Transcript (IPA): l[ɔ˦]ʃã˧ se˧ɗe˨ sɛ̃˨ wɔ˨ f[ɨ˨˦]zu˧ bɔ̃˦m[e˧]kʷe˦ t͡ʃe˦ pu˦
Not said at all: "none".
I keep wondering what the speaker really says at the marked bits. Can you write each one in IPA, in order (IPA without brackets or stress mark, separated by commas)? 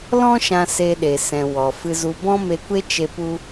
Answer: ɔ̃˦, ɨ˧, e˧